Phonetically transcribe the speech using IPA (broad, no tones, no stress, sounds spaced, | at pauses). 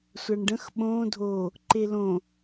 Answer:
sʷ a ɳ ɖ ə̃ x ɓ õ dʱ o | ǃ e l õ